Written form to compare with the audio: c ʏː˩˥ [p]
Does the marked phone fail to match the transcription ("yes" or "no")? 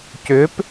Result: no